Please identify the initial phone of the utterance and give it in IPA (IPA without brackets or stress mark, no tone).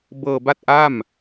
b